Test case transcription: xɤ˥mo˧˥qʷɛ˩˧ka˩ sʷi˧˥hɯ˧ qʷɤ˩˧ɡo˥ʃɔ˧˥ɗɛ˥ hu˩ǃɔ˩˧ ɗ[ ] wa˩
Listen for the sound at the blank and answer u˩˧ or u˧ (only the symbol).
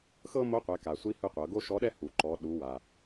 u˩˧